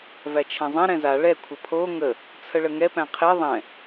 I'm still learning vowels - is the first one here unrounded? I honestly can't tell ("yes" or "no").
yes